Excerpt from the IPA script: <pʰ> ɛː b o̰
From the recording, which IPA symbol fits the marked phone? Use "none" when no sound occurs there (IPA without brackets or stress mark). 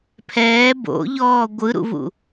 pʰ